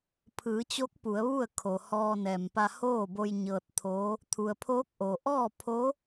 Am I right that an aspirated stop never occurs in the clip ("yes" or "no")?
no